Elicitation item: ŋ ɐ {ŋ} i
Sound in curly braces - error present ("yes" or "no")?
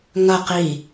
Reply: yes